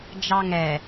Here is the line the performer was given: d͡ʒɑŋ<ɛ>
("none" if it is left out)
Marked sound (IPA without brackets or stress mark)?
ɛ